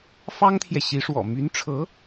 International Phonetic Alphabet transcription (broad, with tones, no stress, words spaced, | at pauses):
fɑ˥ŋt̪ʰjɛ˨ɕi˧˥ʂwɔ̰˨˩ my˧˥nʈ͡ʂʰɤ˧˥